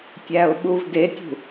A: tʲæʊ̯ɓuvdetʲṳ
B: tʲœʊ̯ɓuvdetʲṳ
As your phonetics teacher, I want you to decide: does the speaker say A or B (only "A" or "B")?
A